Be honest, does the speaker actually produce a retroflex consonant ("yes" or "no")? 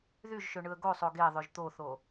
yes